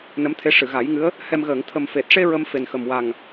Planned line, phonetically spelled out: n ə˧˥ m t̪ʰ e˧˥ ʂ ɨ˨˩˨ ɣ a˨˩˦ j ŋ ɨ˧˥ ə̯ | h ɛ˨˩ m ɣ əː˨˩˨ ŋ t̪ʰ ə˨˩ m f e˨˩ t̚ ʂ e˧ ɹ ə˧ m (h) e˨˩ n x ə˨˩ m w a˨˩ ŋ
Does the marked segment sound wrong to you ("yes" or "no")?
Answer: yes